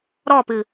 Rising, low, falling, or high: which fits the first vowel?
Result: falling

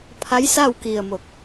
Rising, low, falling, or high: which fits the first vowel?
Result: rising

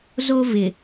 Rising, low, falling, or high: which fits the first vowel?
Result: high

